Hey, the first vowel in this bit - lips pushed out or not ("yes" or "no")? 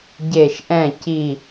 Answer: no